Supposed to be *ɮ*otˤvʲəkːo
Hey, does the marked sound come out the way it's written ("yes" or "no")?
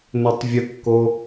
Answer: no